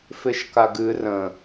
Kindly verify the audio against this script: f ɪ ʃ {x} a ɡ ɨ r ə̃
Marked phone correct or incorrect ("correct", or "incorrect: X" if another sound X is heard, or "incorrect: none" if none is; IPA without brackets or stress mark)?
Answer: incorrect: k